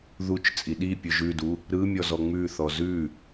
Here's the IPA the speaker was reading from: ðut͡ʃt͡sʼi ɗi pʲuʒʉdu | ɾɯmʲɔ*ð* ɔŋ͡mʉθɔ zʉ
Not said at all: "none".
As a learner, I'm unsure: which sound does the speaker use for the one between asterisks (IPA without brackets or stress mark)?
z